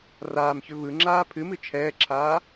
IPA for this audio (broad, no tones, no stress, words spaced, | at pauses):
raːmçʏ vɯŋ͡ǁaː pʰɨmɨ t͡ʃʰɛːǁʰaː